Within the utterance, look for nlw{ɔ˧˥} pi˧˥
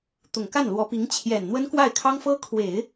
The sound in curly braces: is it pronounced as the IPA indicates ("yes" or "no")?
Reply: yes